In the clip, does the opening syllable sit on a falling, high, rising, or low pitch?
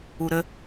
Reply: low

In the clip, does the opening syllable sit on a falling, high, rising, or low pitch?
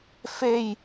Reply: falling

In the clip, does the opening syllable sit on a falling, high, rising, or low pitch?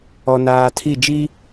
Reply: low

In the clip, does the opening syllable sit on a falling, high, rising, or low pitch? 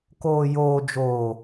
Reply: low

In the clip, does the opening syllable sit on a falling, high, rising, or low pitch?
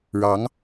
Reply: rising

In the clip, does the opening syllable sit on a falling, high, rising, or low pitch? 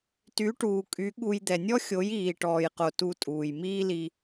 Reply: rising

